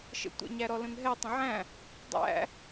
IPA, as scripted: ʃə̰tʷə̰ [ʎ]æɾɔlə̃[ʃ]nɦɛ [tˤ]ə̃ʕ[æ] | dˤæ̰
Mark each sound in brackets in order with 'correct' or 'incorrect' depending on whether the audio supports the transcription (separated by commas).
incorrect, incorrect, correct, incorrect